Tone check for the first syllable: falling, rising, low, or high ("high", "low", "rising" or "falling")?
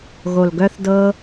low